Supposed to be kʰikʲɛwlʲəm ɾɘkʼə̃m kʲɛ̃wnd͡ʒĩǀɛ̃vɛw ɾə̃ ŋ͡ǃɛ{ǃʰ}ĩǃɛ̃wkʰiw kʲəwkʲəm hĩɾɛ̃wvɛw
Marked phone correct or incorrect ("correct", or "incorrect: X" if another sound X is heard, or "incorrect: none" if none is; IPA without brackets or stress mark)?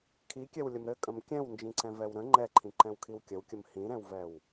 correct